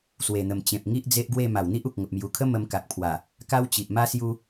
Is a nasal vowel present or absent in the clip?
present